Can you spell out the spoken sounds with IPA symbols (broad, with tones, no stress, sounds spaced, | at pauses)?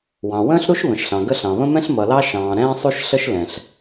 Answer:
w ɑ̃˩ w ə̃ː˥ ɬ ɾ u˥ ʃ β ə̃˩ ʃ ɬ ɑ̃˩ ɡ ə˥ ɬ ɑ̃˩ β ə̃˥ m ɛ̃˥ ɬ m ʌ˩ l ɑ˥ ʃ ɑ̃ː˩ ɾ ɛ̃ː˥ sˤ u˥ ʃ ɬ ə˥ ʃ l ɛ̃˩ ɬ